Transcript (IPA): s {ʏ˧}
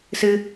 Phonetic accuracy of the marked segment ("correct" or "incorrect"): incorrect